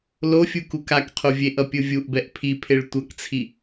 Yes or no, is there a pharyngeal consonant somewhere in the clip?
no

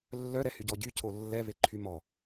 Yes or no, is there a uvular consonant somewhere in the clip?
no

